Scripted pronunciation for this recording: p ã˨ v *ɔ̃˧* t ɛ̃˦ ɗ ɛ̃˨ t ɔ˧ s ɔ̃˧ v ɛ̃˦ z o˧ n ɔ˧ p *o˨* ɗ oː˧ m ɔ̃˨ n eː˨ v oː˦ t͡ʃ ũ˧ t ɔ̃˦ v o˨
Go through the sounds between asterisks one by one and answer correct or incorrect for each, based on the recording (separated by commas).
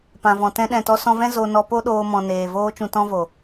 incorrect, incorrect